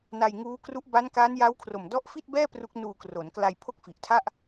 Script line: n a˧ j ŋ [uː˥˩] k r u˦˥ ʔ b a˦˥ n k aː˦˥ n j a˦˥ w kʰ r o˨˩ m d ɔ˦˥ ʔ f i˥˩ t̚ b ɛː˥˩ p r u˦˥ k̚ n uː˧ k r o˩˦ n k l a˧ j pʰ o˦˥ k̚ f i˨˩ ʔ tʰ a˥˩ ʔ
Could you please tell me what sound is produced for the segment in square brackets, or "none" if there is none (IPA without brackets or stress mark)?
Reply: uː˦˥